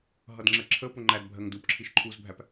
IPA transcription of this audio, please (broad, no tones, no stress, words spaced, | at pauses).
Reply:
ɦʌdŋ͡ǁɜǁʰəpʊ ŋ͡ǃæd bʱɜŋdupǁʰiʃ ǃʰuzbʱæp